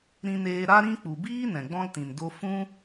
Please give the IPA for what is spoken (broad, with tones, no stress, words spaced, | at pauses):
ɾĩ˧neː˧ ɾa˦ɾĩ˦k͡pu˨ biː˦ nɛ̃˨ɡ͡bɔ̃˦ltĩ˨n do˧ fũ˦